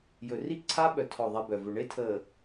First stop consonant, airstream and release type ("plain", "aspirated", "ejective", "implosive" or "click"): click